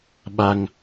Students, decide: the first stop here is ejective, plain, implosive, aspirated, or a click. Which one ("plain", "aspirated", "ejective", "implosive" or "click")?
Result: implosive